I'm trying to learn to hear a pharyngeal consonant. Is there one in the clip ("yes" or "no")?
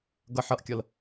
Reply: yes